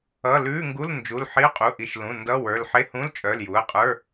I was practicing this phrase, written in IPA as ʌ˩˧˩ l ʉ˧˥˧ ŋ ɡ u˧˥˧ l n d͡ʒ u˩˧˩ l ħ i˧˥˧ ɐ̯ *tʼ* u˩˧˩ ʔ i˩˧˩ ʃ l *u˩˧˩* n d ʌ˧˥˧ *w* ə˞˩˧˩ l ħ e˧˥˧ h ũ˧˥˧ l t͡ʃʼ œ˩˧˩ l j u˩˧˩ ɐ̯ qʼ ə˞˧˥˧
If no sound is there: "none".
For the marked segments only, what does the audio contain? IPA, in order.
qʼ, ũ˩˧˩, w

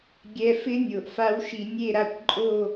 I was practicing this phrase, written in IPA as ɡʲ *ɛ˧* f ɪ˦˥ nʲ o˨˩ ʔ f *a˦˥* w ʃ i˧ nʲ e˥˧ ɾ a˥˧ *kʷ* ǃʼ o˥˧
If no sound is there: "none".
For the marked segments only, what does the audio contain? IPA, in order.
ɛ˧, a˦˥, kʷ

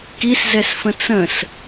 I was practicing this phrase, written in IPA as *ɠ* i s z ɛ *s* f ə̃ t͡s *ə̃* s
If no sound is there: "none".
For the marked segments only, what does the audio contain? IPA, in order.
k, s, ə̃

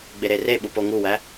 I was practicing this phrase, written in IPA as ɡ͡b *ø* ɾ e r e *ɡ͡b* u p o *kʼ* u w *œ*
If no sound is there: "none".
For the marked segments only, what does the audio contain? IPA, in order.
e, ɓ, ŋ, æ

